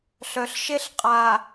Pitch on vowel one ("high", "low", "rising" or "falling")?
low